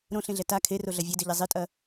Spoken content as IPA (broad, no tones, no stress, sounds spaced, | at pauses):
ɾ õ ɬ ẽ ɮ ɛ t a kʰ e r o ɮ ɐ vʲ e d ɘ ʎ ɛ zˤ i tʼ ɐ